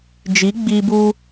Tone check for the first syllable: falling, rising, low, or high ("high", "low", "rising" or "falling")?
rising